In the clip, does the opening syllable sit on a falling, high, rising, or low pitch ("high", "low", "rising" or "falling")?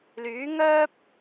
rising